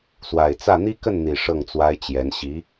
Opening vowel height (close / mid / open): open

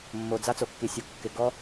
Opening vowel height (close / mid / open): mid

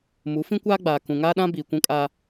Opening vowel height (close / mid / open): close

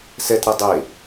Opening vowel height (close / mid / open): mid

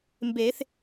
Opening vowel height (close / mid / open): mid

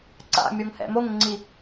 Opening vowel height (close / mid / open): open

